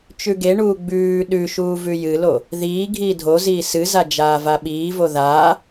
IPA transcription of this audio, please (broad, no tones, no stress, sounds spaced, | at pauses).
t͡ʃ ʉ ɡ e ɳ uː ɡ͡b ʉː ɗ ʉ ʃ uː v ʉ j ɨ l o | ð iː ɡʱ iː dʱ o z iː s ɨ z a d͡ʒ aː v a ɓ iː v o ð aː